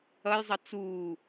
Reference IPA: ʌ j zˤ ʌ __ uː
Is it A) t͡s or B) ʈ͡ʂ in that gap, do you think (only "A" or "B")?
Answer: A